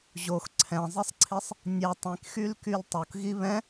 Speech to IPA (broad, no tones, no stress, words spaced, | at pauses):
ʑox ǀʰɛ̃zˤisˤǀʰisˤ | nʲɛ tˤĩkxylkyl tˤokɣi βɛ̃